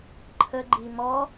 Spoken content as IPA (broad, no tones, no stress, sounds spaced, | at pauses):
ǃʰ ə ɡ͡ǃ i m ɔ